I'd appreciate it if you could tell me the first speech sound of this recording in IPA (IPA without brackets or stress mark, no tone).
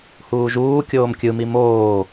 h